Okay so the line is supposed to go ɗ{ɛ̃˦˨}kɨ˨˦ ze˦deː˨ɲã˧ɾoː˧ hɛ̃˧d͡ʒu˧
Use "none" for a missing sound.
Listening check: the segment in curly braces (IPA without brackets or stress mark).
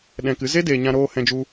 ɛ̃˧